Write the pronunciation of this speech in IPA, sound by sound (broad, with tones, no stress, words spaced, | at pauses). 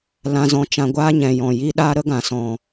lã˧zɔ̃˧ t͡ʃã˧ɡʷaː˦ɲɛ̃˨ jɔ̃˨ji˦ ɗaː˦ɾə˦ɡã˨ sɔ̃˨